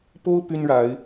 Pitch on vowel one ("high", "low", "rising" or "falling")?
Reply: high